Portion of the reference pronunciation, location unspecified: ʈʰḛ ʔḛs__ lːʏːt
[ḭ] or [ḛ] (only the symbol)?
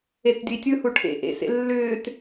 ḛ